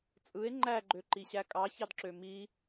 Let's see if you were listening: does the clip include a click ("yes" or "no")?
yes